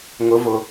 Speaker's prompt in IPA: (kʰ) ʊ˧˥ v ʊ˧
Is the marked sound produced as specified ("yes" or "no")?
no